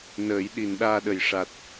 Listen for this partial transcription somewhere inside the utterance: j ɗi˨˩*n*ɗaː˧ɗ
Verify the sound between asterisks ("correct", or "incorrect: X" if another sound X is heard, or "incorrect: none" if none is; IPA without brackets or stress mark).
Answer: correct